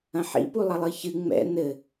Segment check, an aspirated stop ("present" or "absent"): absent